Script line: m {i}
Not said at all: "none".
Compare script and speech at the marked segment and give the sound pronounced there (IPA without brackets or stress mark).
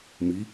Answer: i